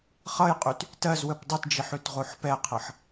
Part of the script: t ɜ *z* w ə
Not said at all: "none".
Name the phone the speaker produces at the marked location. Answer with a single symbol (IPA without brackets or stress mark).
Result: z